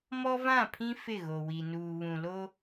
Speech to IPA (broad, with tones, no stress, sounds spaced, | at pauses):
m ɔ˦ v ã˦˨ pʰ ĩ˦ f ɪ˦˨ ɣ o˨ w i˨ n uː˨ β ũ˨ l o˦